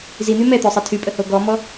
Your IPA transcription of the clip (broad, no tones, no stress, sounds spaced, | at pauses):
z i n̪ y m ɛ t̪ ø sˤ e tʰ y pʼ ə h o ɡ ɔ m ɔ